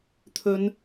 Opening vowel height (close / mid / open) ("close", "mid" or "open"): mid